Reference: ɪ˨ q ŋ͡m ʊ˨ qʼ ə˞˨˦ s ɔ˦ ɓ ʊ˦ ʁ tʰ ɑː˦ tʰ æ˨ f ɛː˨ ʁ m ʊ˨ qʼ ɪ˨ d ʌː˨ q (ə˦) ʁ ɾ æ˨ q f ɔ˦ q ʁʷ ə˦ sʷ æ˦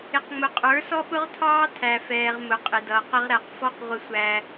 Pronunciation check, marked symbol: correct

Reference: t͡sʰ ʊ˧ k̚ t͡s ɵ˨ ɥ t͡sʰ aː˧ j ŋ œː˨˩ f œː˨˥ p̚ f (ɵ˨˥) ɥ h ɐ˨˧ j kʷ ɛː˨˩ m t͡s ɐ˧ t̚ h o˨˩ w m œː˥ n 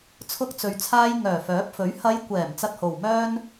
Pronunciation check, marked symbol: correct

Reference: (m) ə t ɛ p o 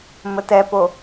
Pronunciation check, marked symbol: correct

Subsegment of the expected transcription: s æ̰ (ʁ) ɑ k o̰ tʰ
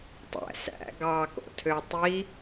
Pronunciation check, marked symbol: incorrect: ɡ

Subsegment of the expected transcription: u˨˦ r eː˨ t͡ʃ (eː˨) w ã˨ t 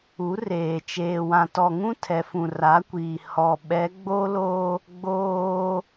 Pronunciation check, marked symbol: correct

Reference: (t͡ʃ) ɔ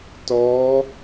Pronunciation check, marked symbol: incorrect: t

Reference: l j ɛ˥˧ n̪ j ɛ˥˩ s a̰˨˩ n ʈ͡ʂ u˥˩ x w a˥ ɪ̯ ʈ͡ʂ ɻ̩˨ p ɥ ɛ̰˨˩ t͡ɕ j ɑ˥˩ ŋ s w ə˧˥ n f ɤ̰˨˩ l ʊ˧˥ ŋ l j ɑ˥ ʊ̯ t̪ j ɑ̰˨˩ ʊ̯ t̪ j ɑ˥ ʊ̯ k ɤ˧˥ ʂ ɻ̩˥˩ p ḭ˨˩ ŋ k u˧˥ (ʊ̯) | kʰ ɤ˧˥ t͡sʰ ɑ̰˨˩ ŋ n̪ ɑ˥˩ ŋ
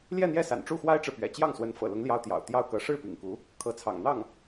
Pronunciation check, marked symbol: incorrect: none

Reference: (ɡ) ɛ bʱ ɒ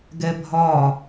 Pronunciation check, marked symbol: correct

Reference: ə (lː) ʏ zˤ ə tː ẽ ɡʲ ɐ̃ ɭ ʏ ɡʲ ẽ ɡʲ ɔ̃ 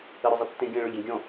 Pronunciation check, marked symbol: incorrect: ɾ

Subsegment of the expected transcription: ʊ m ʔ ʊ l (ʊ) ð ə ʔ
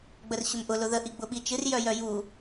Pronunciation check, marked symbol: correct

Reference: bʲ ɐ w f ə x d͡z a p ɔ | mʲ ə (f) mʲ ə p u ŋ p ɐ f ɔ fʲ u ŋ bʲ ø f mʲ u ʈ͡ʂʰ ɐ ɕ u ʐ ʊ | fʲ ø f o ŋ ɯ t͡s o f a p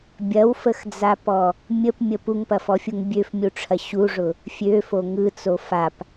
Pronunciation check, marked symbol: incorrect: p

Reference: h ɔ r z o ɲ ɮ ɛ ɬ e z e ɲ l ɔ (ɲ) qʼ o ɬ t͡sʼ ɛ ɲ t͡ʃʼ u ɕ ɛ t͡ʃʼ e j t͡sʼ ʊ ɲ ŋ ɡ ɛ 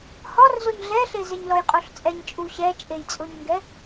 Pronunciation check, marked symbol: incorrect: j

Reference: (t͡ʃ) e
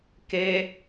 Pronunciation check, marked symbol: incorrect: k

